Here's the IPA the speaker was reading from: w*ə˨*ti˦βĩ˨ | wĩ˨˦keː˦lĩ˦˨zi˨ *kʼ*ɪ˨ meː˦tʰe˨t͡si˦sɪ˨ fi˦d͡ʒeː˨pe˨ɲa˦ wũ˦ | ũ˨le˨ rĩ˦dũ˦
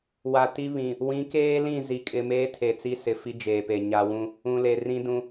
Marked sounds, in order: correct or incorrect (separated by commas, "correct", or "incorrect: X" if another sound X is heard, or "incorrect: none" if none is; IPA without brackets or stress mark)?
incorrect: a˨, correct